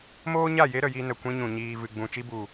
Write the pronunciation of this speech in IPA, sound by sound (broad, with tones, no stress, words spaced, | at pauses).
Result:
moː˦ɲa˦˨ je˦ ɾə˨ji˧nə˨ kʷĩ˧ɲũ˨ ɲiː˨vɨ˨ɡ͡bũ˨ t͡ʃi˧bu˨